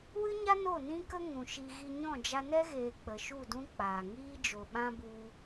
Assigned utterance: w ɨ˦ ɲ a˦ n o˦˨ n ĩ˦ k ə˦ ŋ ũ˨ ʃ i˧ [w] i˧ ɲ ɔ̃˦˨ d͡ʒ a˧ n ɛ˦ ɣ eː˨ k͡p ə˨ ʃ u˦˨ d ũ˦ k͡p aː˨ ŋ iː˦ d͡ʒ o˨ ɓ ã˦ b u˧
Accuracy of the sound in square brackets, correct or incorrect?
incorrect: ɣ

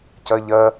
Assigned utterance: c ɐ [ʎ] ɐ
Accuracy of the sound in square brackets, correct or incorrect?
correct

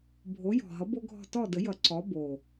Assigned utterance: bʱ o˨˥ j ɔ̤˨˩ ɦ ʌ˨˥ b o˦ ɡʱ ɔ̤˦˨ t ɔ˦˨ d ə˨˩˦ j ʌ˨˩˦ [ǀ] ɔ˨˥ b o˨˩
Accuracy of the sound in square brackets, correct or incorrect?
correct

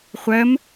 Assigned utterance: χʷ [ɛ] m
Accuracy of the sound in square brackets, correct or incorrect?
incorrect: ɜ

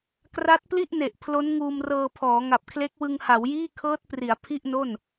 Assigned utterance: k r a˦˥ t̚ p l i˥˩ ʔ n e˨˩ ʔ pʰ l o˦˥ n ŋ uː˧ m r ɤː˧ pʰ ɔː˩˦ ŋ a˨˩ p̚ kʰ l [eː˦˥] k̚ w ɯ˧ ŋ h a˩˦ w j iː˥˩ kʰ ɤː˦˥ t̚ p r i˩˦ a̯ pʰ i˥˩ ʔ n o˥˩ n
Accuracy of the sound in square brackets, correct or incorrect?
incorrect: e˦˥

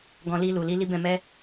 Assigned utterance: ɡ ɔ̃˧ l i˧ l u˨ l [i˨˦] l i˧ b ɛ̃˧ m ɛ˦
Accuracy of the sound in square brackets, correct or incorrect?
incorrect: i˧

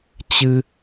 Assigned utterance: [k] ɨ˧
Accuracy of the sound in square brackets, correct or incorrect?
incorrect: t͡ɕ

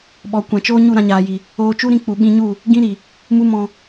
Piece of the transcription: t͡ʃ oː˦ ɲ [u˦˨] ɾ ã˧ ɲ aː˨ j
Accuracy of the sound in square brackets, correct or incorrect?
correct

